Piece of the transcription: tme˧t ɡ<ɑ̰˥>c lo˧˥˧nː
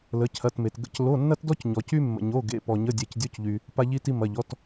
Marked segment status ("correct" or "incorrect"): incorrect